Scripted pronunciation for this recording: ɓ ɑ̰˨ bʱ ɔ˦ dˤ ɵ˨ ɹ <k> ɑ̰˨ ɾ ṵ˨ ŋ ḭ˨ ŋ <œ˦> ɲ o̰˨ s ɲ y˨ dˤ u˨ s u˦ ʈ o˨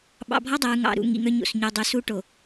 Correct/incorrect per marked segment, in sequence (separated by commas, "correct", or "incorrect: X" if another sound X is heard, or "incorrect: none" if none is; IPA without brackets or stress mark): incorrect: ŋ, correct